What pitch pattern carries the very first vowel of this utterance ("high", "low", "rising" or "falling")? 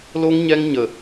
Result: high